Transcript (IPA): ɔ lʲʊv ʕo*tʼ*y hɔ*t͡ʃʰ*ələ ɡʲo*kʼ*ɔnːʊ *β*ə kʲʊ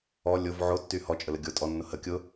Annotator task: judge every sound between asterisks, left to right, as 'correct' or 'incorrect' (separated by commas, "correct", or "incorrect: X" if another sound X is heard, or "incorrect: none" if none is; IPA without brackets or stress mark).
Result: incorrect: tː, incorrect: t͡ʃʼ, incorrect: tʼ, incorrect: h